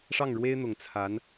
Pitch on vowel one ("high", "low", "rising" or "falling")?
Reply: falling